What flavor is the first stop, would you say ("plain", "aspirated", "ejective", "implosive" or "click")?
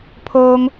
aspirated